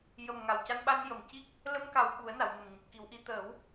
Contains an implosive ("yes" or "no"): yes